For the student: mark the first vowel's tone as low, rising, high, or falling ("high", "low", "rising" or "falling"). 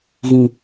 low